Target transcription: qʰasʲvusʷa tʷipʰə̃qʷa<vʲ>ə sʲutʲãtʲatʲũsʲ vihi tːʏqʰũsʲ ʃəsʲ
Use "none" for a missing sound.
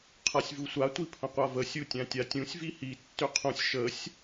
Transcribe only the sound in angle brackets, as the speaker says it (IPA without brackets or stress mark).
v